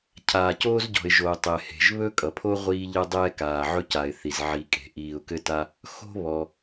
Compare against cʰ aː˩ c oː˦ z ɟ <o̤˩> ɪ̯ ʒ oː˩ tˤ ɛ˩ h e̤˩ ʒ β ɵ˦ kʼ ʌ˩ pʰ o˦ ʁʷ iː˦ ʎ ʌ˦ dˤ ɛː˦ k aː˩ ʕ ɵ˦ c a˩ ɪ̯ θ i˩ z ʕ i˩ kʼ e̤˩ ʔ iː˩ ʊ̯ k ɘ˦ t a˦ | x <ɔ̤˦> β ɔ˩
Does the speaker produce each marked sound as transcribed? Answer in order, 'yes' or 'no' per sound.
no, no

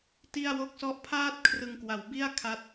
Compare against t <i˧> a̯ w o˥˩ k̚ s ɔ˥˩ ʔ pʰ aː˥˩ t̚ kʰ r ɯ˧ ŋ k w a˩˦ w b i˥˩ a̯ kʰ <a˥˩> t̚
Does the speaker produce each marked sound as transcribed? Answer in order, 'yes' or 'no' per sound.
no, no

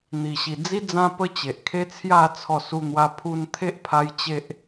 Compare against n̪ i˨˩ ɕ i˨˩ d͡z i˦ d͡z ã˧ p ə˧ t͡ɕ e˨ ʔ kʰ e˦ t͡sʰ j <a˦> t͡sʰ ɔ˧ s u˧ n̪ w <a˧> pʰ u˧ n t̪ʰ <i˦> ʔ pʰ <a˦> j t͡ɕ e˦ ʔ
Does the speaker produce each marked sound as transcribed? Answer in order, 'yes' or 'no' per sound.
no, yes, no, yes

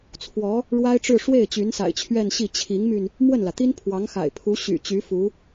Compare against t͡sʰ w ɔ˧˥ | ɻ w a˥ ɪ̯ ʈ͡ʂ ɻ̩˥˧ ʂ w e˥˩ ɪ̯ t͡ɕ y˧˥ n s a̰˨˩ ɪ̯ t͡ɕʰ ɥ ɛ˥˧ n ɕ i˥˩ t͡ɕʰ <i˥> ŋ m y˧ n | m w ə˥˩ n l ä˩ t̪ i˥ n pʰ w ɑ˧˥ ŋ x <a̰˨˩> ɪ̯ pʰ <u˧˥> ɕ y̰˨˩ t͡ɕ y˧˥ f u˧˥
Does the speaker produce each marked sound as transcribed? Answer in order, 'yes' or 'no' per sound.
no, yes, yes

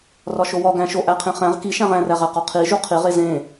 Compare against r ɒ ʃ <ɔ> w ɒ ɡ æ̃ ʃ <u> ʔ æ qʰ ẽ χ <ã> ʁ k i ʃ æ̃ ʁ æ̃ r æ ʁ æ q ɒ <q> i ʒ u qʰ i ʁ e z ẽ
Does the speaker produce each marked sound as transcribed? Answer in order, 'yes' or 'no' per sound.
no, no, no, no

